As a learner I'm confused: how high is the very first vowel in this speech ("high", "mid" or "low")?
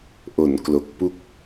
mid